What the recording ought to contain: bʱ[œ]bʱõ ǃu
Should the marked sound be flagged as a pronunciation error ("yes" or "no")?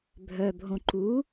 no